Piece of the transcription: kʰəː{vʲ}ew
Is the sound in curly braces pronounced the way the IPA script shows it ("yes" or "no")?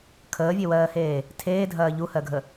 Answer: yes